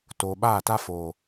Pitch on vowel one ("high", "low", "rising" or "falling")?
low